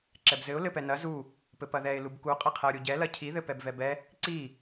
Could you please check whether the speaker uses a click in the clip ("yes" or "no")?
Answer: yes